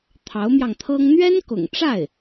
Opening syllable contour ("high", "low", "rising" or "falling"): rising